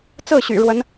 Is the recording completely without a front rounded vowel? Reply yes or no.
no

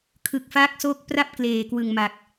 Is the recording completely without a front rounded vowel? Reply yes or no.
yes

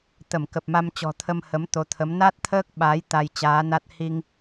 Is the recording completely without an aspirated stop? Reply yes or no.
no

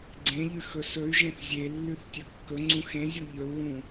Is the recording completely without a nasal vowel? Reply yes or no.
no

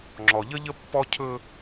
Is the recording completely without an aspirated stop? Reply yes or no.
no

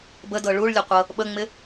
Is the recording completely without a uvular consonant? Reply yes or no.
no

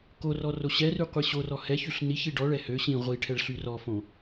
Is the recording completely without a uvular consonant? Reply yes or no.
no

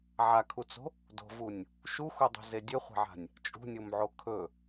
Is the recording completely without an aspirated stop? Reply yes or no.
no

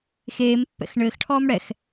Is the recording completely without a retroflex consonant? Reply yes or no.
no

